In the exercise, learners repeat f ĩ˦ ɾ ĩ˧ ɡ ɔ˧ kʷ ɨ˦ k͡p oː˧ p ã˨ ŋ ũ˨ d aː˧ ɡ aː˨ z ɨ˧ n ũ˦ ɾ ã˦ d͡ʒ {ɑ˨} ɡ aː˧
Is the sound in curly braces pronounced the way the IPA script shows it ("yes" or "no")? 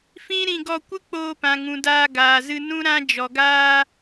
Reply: no